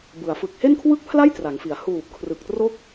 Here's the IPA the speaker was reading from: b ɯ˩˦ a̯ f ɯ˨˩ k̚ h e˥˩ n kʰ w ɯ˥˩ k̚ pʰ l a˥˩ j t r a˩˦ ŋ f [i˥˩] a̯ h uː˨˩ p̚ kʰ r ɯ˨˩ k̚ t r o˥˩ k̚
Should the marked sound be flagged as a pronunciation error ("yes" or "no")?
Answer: yes